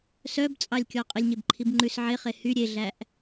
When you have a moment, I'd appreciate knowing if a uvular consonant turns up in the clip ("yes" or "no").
yes